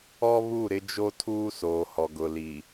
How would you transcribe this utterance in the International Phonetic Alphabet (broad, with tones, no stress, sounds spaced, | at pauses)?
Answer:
ɔ˦ β u˦˨ ɾ ɪ˦ d͡ʒ o˦ tʰ uː˦ s oː˨ h ɔ˨ ɡ ʊ˨ l i˨